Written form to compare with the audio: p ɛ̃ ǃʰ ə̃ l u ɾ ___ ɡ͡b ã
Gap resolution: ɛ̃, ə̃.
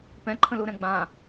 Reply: ɛ̃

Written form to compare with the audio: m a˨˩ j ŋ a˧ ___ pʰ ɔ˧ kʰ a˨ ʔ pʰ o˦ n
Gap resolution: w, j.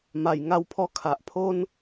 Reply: w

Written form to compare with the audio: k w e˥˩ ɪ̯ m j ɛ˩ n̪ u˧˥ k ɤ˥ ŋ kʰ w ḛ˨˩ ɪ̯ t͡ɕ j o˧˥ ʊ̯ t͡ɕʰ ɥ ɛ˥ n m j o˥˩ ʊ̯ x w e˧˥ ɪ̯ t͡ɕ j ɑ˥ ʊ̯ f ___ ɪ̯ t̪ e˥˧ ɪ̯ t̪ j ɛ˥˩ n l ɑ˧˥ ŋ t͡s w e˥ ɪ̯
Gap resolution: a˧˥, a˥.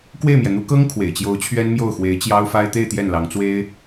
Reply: a˥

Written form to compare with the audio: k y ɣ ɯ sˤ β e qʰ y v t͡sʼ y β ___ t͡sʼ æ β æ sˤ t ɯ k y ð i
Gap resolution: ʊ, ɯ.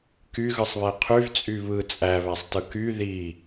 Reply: ɯ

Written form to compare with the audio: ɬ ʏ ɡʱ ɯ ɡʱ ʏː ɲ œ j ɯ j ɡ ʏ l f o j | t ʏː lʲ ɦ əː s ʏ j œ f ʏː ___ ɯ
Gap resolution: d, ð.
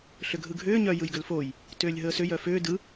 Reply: d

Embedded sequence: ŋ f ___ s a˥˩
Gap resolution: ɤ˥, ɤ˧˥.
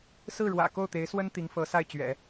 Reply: ɤ˧˥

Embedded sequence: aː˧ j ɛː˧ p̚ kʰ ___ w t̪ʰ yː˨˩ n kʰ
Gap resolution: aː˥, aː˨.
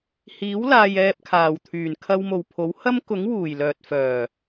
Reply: aː˨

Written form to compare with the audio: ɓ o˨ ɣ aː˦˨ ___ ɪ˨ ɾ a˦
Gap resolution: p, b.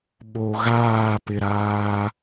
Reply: p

